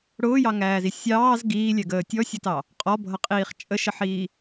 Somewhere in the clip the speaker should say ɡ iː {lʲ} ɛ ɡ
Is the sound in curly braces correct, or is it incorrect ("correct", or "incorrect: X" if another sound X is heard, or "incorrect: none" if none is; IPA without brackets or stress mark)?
correct